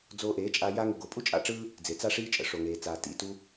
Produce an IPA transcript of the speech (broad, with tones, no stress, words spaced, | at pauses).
d͡zoː˧ʔeː˨˦t͡ʃʼa˧ ja˦ŋə˧ ɡo˨pʼu˦ t͡ʃʼa̰˧ʈ͡ʂɯː˦ | d͡ze˨ t͡sa˦ ʂiː˦t͡ʃʼə̰˨ ʂo˨ŋeː˨t͡saː˨ tḭ˨tu˧